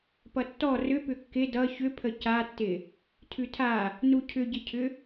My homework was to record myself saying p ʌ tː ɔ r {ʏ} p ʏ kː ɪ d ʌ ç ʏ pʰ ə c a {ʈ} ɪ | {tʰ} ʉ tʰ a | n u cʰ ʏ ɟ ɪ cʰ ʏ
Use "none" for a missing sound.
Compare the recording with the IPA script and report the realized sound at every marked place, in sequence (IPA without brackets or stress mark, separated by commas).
ʏ, tː, tʰ